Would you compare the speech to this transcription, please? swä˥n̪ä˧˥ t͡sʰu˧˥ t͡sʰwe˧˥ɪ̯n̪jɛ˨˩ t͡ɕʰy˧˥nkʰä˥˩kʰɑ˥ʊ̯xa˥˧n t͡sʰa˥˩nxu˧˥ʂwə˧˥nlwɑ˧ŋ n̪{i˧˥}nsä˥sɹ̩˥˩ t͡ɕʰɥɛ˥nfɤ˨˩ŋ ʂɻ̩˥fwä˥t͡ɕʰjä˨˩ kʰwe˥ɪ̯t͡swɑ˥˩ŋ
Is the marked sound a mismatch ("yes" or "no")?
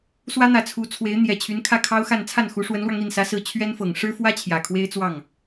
yes